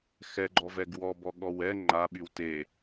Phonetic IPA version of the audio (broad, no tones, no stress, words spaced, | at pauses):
xɛɡ͡ǃɔvɛɡ wɔbɔɠɔw ɛ ŋ͡ǃaɓyw te